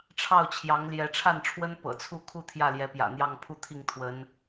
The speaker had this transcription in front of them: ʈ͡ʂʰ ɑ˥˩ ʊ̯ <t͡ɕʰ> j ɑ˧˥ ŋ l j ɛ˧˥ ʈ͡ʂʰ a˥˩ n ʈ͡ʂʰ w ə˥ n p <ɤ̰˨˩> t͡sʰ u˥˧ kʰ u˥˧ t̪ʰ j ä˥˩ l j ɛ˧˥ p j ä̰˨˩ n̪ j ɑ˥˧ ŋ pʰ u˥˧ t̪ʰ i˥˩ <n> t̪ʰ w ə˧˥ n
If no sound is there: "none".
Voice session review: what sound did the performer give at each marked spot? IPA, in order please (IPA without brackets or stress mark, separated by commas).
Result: t͡ɕʰ, ɤ̰˨˩, ŋ